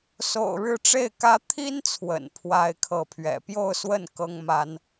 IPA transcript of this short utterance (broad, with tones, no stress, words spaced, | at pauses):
so̰˨˩ʊ̯ɻɻ̩˥˧ʈ͡ʂe˥˩ɪ̯kä˥ t̪ʰi˥nt͡sʰwə̰˨˩n pʰwa˥ɪ̯kʰɤ˥˩ pʰɥɛ̰˨˩pjo˥˧ʊ̯swə˥˩n kɤ˥ŋma˥n